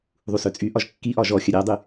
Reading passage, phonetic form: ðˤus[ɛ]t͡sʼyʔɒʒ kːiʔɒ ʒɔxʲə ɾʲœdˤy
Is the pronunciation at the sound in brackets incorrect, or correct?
incorrect